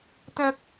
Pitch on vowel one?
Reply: high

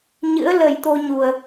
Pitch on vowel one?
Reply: rising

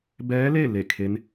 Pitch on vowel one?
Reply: rising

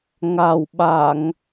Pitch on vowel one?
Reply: low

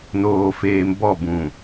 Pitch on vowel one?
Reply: low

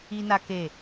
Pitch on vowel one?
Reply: high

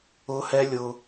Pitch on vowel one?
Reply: high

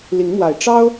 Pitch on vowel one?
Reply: rising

